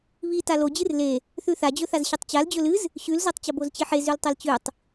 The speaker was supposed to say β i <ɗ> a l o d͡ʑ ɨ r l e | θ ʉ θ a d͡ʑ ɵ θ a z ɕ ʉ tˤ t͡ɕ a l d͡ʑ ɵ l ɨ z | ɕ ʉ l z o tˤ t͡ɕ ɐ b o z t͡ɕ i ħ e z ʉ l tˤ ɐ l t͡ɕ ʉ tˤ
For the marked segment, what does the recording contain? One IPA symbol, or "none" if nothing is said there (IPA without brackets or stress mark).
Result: t